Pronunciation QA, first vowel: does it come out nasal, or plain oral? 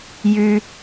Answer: oral